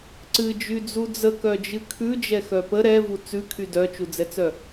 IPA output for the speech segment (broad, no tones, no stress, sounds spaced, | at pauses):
ǀ ɨ d͡ʒ y d͡z u d͡z ə k œ d͡ʒ ɨ kʰ ʉ d͡ʒ ɛ x œ p ə ɾ ɛ v u t͡s ʉ kʰ y d œ t͡ʃ u d͡z ɛ t͡s œ